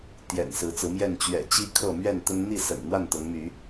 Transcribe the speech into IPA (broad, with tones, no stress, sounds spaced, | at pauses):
t̪ j ɛ̰˨˩ n s ɹ̩˨˦ t͡s ɹ̩˨˦ m j ɛ˥˨ n t͡ɕ ɥ ɛ̰˨˩ t͡ɕ i˦ kʰ ɤ˥˨ m ɥ ɛ˥˨ n t̪ ə˦ n n̪ i˥˨ s ə̰˨˩ n n̪ w a˥˨ n t̪ ɤ˨˦ ŋ m y˨˦